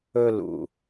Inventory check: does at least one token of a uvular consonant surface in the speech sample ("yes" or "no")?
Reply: no